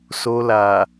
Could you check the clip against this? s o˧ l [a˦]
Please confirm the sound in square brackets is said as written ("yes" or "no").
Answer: no